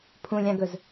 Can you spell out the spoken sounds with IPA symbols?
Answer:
pʰũlʲãɡɵz

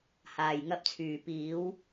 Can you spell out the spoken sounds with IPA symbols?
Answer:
haː˨jŋɐ˧p̚t͡sʰyː˨ piː˨˧w

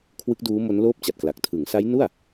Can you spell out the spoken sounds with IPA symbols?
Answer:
kʰwɯ˦˥k̚duː˦˥ mo˦˥nloː˥˩p̚t͡ɕa˨˩t̚kla˨˩k̚ tʰɯ˩˦ŋsa˦˥jnu˥˩a̯

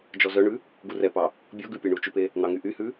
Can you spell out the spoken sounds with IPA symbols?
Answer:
d͡ʒɔzœɳʉ | ɡurɛpɑ | bʲɔɡʉ pʲøɳut͡ʃʉpe | n̪ɑŋyʔyhʉ

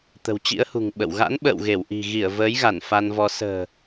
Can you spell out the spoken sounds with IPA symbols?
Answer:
t̪ə̤˨˩wt͡ɕḭ˧˥ə̯hṳ˨˩ŋ ɓə̰˧˨w ɣa̰˧˥nɓə̰ː˧˨w ɣe˧˩wʔi̤˨˩ ɣi˧˩ə̯ vəː˨˦jɣa˧˩n fa˧nvɔ˧ sə̤ː˨˩

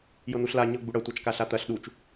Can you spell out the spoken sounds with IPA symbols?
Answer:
jɤn̪uɬla ɲɤ ɡ͡buɽɐ tʷat͡ʃkaɬat̪ɐɬ ɗut͡ʃ

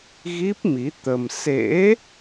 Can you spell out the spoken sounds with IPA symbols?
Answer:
ɣi˦˥p̚ mi˨˦ t̪ə˧m sḛ˧˥

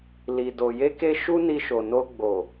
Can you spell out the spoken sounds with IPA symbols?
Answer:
li˨ do˨ je˧ke˧ ʃu˦ni˧ʃo˨ no˧ɡ͡bo˨

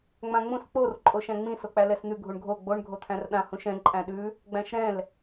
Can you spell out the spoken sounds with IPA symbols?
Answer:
ŋ͡mãŋ͡mũs k͡por ǃʼoʃæ̃ŋ͡mĩ sok͡pælɛsn̪ʉ ɡʱuɳɡʱo ɡ͡boɳ ɡʱot̪ʰæ̃rɗã hũʃɛ̃ ǃʼæ̃ɗʉ | ɡ͡bæ̃ʃɾɛ̃l

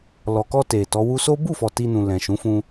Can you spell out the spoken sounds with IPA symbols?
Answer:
lɔ˨kɔ˧ te˨tɔ˨˦ wu˧so˦ bu˦˨fɔ˨ ti˧nũ˨ lɛ̃˨ʃũ˨˦fũ˧

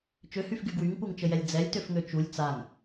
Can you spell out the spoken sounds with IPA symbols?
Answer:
t͡ʃøhyfɡy ɡwyŋpuŋt͡ʃəjɛlʲ d͡zɛlʲtøfŋø t͡ʃulʲ t͡saŋ

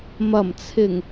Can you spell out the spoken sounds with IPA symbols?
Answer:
mɐ˨˩mt͡sʰɪ˨˩ŋ

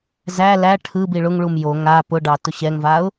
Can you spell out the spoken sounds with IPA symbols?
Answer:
zæ læ ʈʰɯ biɭʊŋɭum jo ŋa pʊɖɑ tʊɕɛŋvaʊ̯

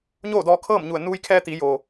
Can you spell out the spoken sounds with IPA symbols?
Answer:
ɲoː˥˨dɔː˧kʰɤː˥˨mɲu˧˩ə̯ nuː˧jkʰɛː˧ t̪i˩˧joː˩

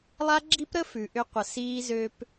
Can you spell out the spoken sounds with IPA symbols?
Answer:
lˠa˦ɡ͡ǁi˦pɾə˦ fʉ˨ʔʏ˧qʷə˨ siː˧zø˧p

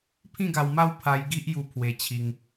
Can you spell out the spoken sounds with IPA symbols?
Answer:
pʰĩ˥˧ɡa˧wma˥˧w pʰa˧j ɡi˦ʔju˧ pʰwe˧t͡ɕʰi˧ŋ

